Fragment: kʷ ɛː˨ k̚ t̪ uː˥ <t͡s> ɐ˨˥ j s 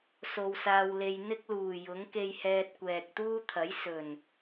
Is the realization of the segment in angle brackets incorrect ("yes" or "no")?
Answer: yes